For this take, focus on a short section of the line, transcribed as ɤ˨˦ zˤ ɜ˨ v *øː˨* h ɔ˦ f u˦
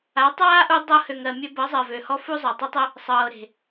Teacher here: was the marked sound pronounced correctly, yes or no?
no